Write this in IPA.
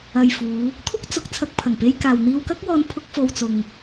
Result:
ɐ˨ j f uː˨˧ | t̪ʰ ʊ˥ k̚ t͡s ʊ˨ k̚ t͡sʰ ɐ˧ k̚ pʰ ɐ˨˩ ŋ p e˧ j k aː˨ w n̪ iː˧ w k ɐ˥ k̚ w ɔː˧ n pʰ ʊ˧ k̚ f o˨ w t͡s ʊ˨ ŋ

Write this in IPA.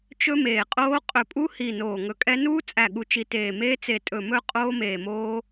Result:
t͡ʃ ɵ˦˥ m eː˧˩ qʼ oː˦˥ qʼ ɵ˧ pʼ u˦˥ h i˧˩ n oː˧˩ ŋ ɵ˧ kʼ ɛ˦˥ n uː˦˥ t͡sʼ æ˧˩ ɠ u˧ t͡ʃ i˧ t eː˧˩ m eː˦˥ t͡s e˧ tʼ ɵ˧˩ m ɵ˦˥ qʼ oː˦˥ m eː˧˩ m oː˦˥

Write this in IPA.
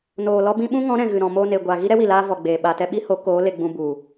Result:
n oː˨ l ɔ˧ b ĩ˧ ɓ ũ˦ ŋ ɔ̃˨˦ ɾ ɛ̃˨ ɣ ɨ˨ ɾ ɔ̃˨ m oː˧ n e˨ ɡʷ a˨ ɣ i˦ ɾ ɛ˦ w i˨ l aː˧ v ɔ˨ ɡ͡b eː˨ ɓ a˨ t ɛ˦ ɓ i˦ h o˨˦ k oː˨˦ l e˧ ɡ͡b ũ˧ b u˨

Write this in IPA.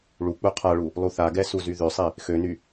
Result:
ɭ u k͡p u qʰ a ɭ u | lˠ u θ a ɡ ɛ s u z y ð ø sˤ i | x ø n y

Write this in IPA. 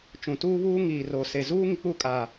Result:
t͡ʃ ũ˨ t uː˦ β uː˦ ŋ iː˨ r oː˨ s e˨ z uː˦ ŋ i˨ k͡p u˦˨ kʼ aː˨

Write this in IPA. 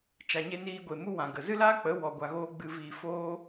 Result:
t͡ʃ a˧ ɲ e˦ n iː˦ ɡʷ e˧ m u˦ w ã˨ ɡ ə˨ z ɨ˦ l aː˦ k͡p ə˨˦ w ɔ˧ ɡʷ a˧ ɣ oː˦ ɡ͡b ɨ˧ v iː˧ f oː˦

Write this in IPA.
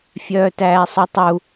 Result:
fʲ œː t æː sˤ ɵ tˤ u

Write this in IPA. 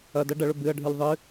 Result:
ɐ d ɐ ɖ ɐ ɭ ɵ b ɨ ɐ̯ ɖʱ ɨ lʲ ðˤ ɨ

